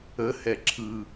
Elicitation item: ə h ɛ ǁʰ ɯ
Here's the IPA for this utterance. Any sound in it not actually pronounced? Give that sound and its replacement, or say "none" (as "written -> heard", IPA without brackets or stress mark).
none